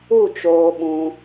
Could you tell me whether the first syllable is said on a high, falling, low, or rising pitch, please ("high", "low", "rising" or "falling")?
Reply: falling